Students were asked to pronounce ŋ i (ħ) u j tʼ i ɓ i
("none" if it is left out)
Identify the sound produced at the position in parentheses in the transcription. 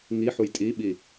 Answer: ħ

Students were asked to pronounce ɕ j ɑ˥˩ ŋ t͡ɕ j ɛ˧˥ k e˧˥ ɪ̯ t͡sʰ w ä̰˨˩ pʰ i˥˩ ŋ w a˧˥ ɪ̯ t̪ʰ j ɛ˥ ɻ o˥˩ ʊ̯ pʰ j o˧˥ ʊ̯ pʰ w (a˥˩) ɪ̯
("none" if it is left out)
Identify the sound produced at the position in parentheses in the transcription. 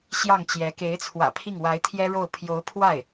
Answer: a˥˩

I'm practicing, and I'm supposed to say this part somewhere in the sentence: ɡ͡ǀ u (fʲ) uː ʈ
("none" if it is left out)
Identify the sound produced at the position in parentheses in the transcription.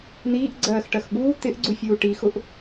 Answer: fʲ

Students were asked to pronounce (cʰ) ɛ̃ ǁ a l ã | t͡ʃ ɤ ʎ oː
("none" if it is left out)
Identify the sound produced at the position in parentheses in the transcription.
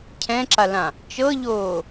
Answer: cʰ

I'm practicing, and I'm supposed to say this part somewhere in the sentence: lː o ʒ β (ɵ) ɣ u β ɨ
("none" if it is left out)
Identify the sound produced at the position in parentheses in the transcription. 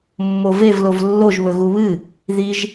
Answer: ɵ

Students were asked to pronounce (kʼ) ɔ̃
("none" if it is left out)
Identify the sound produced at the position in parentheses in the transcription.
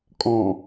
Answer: kʼ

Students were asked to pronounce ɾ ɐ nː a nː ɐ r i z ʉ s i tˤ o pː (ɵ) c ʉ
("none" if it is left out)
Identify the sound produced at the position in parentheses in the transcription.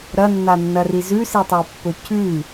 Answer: ɵ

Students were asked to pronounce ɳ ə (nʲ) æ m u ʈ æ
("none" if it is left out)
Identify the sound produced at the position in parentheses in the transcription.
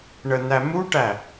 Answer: n̪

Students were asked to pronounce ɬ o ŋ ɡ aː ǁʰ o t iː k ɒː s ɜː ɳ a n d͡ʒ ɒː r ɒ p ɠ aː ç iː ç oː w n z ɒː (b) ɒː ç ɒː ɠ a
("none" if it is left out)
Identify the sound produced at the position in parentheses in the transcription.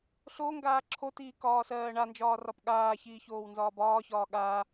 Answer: b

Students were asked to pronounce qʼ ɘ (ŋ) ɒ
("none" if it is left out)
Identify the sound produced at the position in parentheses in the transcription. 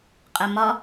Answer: m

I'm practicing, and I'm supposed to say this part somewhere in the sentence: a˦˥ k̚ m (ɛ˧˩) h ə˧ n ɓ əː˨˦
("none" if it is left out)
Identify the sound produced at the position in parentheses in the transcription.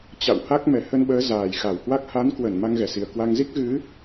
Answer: ɛ˧˩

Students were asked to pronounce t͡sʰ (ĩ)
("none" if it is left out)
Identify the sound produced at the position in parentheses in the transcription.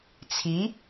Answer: i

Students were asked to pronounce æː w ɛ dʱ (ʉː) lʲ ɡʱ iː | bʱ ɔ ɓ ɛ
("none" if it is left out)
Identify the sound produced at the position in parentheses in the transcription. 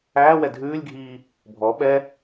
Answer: ʉː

